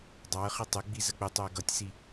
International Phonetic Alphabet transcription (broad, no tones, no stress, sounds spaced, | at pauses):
dˤ ɑ ə̯ χ i tˤ ɪ ɡ͡b i z ə k͡p ɪ tˤ ʊ ə̯ ɡ ʌ tʲ s i